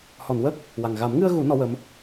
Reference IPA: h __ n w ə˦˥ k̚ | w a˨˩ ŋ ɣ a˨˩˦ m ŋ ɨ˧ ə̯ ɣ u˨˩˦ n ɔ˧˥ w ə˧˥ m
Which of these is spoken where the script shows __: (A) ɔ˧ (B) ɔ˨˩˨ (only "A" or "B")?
B